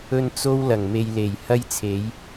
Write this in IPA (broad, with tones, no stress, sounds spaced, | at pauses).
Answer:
ɵ˧ n t͡s o˧ w l ɐ˨˩ ŋ m e˨ j l e˨˩ j h ɐ˧ j t͡sʰ e˨˧ j